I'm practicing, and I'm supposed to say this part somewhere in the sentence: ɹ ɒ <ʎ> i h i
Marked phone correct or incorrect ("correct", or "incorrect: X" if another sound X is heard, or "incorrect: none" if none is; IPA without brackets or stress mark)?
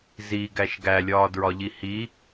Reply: correct